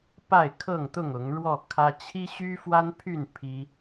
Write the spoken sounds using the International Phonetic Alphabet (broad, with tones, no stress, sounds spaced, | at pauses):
p a˥˨ ɪ̯ kʰ ɤ˥˨ ŋ t̪ ʊ˥˨ ŋ ʊ˨˦ ŋ ɻ w ɔ˥˨ kʰ ä˦ t͡ɕʰ i˦ ɕ y˦ f w a˦ n pʰ y˥˨ n pʰ i˦